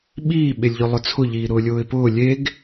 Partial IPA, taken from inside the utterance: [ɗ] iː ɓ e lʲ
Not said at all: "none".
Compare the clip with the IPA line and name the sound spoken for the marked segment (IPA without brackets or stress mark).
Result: ɓ